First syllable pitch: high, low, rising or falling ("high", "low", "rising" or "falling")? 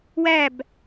falling